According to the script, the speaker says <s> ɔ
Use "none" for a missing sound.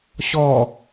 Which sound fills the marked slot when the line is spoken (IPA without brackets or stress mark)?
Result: ɕ